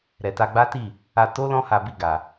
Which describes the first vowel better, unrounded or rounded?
unrounded